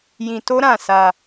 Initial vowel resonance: nasal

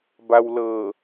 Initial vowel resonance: oral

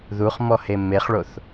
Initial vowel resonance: oral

